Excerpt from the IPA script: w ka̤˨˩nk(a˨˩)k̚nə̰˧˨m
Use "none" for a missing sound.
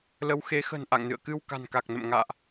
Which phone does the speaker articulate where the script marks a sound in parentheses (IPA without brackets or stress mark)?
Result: a˨˩